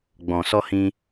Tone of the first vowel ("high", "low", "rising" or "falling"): low